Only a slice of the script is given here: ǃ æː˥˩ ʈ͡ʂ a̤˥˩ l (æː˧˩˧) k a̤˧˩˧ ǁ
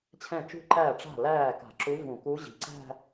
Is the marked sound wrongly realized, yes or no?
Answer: yes